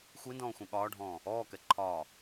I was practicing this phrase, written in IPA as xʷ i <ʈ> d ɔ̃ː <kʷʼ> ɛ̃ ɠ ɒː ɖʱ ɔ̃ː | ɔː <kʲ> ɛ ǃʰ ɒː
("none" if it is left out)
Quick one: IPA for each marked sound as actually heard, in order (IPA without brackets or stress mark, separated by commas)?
n, xʷ, k